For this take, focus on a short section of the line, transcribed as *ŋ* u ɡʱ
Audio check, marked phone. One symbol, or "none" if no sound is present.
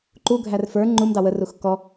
ǃ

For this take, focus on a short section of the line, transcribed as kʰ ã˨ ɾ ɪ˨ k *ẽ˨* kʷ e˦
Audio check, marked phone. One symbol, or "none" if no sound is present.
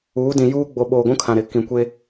ĩ˨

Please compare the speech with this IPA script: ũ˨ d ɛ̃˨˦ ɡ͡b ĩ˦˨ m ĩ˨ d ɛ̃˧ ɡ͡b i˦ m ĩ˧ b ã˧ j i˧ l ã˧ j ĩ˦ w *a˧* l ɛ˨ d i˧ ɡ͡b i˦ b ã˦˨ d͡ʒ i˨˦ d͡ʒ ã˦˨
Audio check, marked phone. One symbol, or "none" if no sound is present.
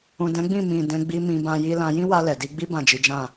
a˧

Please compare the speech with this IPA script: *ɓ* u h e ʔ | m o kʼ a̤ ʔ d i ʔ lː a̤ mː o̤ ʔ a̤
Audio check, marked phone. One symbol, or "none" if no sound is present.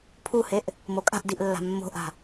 pʰ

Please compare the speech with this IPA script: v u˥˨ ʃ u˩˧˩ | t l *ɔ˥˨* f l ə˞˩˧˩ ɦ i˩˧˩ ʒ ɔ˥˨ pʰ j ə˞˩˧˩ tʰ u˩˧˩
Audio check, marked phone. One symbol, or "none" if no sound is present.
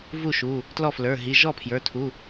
ɔ˥˨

